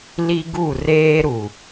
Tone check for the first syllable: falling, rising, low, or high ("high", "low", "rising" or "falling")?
high